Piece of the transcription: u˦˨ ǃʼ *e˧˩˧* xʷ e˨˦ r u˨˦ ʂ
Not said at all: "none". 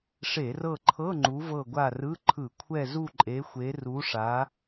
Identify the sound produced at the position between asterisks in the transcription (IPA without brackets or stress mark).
e˨˦